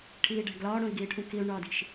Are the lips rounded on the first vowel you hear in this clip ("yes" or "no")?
no